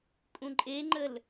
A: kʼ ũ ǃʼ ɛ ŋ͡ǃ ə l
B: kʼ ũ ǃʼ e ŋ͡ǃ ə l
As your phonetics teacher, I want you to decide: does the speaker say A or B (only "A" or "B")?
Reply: B